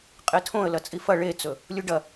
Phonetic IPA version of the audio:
qʼ e tʰ õ ə̯ l ɐ t͡sʼ i f ɐ ɭ e t͡s ɵ | lʲ u ɖ ɐ

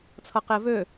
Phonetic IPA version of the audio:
t͡sʰ ʌ q e v ø

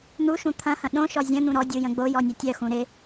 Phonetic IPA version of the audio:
n̪ u ʃ ũ t̪ʰ ɐ̃ h ɐ̃ ɗ õ ʃ ɔ zʲ ə̃ n̪ ũ ɾ ɔ dʲ u j ə̃ ɡ͡b o j ɔ nʲ ɐ tʲ œ x ũ ɾ ɪ

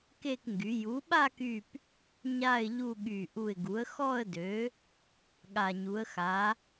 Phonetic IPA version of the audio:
k e˥˧ k ŋ ɡ y˩˥ j u˩˥ ɓ a˥˧ k y˧˩ p | ɲ a˥˧ ɪ̯ ʎ u˥˧ ɠ y˧˩ ʔ u˧˩ ɪ̯ ɡ u˩˥ ə̯ x ɔ˥˧ ə̯ d ø˩˥ | ɠ a˧˩ ɲ u˩˥ ə̯ x a˩˥

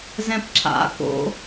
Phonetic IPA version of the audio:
z ɛ̃ p ǁ a̰ k o̰

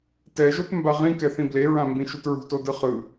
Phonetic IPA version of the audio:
t ɛ ʒ o t m b a ʁ ĩ k ɛ θ ĩ b l e ɹ ã m b ĩ ʃ u t ɹ ṳ t o d ɯ χ ɯ

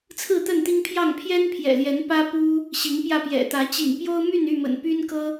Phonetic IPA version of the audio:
t͡sʰ ɹ̩˥˨ t̪ ə˥˨ n t̪ i˦ ŋ pʰ j ɑ˥˨ ŋ pʰ j ɛ˦ n pʰ j ɛ̰˨˩ l j ɛ˨˦ n p ä˦ p u˦ | ɕ i˨˦ ŋ p j ä˧ p j ɛ̰˨˩ t̪ ä˨˦ t͡ɕ ḭ˨˩ ŋ p j o˦ ʊ̯ m y˥˨ n y˥˨ m ə̰˨˩ n p y˦ n k ɤ˦

